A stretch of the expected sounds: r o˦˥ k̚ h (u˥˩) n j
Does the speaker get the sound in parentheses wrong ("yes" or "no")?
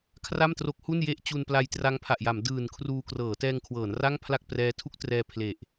no